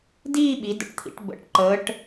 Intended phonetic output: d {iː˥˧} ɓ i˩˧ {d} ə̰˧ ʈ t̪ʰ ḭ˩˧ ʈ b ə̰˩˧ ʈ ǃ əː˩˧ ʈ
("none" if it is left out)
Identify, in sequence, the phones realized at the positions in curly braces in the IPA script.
iː˥˧, d

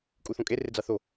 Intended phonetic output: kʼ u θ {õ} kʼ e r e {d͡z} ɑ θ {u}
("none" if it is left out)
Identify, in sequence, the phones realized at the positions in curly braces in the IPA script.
õ, d͡z, o

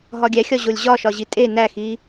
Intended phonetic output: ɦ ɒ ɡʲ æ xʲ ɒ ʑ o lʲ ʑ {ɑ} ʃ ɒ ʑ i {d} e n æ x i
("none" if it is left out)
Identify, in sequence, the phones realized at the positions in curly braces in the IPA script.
ɒ, tʼ

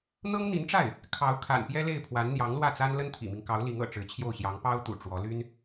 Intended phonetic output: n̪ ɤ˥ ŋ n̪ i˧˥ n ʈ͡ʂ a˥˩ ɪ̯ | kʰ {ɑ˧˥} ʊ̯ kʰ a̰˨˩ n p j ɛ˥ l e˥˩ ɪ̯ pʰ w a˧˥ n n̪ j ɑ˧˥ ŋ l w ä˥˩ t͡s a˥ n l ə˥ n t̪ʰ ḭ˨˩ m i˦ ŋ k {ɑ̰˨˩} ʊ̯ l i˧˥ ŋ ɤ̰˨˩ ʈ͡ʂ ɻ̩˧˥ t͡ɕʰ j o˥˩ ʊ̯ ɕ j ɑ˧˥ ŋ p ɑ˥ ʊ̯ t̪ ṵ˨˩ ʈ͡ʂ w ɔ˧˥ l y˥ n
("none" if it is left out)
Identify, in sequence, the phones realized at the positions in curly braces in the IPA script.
ɑ˧˥, ɑ˧˥

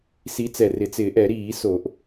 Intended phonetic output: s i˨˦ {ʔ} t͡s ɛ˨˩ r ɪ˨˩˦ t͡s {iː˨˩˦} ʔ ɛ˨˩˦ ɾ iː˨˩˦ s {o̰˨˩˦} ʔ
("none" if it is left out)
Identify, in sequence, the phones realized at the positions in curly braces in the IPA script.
none, ɪː˨˩˦, o˨˩˦

